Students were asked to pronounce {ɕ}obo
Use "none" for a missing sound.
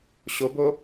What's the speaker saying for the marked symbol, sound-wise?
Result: ɕ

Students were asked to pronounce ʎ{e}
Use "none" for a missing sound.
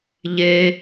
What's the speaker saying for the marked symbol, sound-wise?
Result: e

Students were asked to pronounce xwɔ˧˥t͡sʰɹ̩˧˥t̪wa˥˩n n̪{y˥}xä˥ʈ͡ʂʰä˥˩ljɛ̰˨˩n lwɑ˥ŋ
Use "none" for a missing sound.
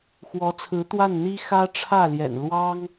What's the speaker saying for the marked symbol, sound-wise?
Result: i˥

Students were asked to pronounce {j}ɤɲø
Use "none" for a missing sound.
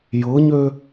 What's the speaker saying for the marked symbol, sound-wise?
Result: j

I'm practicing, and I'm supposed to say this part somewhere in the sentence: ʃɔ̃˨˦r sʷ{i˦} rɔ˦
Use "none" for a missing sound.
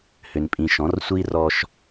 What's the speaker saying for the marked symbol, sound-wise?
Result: i˦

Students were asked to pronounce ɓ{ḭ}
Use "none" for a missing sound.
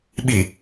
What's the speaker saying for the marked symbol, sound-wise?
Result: i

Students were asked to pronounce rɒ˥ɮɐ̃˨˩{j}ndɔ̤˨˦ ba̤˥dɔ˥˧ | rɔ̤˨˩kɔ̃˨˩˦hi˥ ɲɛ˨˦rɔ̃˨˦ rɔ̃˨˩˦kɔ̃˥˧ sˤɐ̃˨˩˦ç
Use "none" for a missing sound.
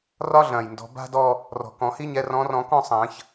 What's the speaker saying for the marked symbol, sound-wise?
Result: j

